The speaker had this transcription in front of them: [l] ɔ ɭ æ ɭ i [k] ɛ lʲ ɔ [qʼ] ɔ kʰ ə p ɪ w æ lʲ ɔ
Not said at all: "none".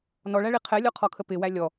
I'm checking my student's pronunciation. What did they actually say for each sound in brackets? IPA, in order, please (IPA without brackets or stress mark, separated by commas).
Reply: n, qʰ, qʰ